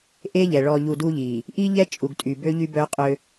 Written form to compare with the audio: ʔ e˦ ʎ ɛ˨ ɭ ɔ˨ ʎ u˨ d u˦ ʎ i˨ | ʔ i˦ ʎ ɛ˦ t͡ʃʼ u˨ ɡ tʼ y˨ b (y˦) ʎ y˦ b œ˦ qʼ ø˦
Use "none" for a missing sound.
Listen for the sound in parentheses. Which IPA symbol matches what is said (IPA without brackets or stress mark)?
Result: ø˦